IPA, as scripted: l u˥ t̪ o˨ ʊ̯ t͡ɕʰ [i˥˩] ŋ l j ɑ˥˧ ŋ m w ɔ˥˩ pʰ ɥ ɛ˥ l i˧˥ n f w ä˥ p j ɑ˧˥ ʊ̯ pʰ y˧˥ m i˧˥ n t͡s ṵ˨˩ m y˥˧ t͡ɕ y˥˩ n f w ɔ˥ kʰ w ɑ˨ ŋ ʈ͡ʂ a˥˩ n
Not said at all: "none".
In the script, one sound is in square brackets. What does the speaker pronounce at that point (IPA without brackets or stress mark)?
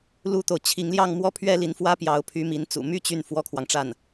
i˧˥